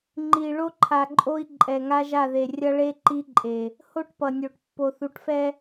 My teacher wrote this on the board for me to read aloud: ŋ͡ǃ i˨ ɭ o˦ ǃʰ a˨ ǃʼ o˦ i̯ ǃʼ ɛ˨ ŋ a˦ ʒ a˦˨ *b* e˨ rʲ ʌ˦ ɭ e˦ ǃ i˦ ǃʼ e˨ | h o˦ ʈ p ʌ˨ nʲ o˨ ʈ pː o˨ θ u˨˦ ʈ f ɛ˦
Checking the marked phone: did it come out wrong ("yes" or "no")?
yes